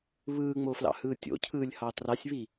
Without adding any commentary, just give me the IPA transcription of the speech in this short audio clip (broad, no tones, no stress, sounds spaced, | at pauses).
β ɯː ŋ͡m o f l ɑ̰ h ɯː tʲ o̰ cʰ ɯː lʲ h ɑ t r ɑ sʲ β i